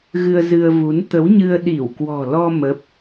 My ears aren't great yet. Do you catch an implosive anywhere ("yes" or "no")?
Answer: yes